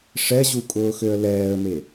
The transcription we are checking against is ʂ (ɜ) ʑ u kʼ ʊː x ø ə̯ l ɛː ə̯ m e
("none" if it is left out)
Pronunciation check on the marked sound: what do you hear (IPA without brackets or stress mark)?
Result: ɛ